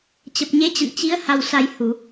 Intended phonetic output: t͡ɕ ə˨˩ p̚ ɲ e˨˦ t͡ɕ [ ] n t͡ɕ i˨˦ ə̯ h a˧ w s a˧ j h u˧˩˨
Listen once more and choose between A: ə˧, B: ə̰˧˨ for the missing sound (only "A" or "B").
B